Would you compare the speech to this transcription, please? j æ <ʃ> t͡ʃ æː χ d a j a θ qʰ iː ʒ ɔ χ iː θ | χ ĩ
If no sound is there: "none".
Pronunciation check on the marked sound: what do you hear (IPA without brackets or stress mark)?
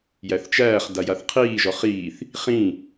θ